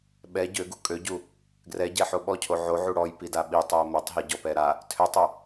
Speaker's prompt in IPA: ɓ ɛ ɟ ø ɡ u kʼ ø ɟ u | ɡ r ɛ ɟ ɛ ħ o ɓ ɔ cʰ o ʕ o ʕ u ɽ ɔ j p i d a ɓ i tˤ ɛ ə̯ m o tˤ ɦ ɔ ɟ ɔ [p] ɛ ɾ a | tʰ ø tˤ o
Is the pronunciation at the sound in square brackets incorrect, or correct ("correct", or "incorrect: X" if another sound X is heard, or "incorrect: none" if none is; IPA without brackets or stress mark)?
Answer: correct